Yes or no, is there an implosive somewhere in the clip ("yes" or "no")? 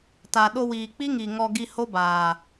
yes